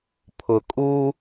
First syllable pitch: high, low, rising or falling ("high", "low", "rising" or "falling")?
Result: low